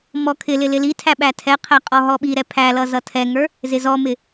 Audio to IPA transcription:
mɔkʰɪlɪ lɪlitʰæ ɓætʰɛqʰæ qʼɔɦɔɓiɾɛ pʰæ lʌzʌtʰɛŋə˞ | zɪzɔmɪ

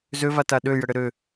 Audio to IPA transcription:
zøvata ɗøjəɽɘ ɾø

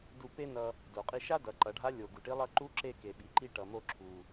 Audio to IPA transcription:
du˧pe˥nʌ˧ | do˩qʼi˧ʃa˥ dʌ˩˧ǃʌ˩˧ɖʱa˧˥ lʲo˩ ɡu˩ʈi˧˥ lˠʌ˧˥ ǃu˧˥ǁe˧ ke˩ɓi˩ǃi˧ ʈʌ˩mo˧ ǁʰu˩

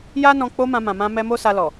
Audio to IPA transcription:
ja˦nɔ̃˧ k͡po˧ mã˧mã˨mã˧mɛ˧ mo˦sa˧ lɔ˨

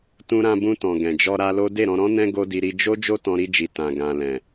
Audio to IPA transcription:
tũ˧ɾã˧bũ˧tɔ̃˨ ɡɛ̃˨d͡ʒɔ˧ ɾa˧lo˦ de˦˨ɾɔ̃˧ɾɔ̃˦nɛ̃˦ ɡo˦di˧ ɾi˧d͡ʒo˦ d͡ʒo˦tɔ̃˧ɾi˧d͡ʒi˨ tã˨ɡã˨ lɛ̃˨

